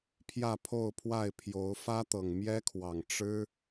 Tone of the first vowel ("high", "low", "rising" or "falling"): falling